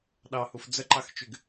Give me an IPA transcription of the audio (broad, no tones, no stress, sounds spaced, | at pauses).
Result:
ɗ ɑ h u f d͡z ə ǃ ɑ x t͡ʃ y ɡ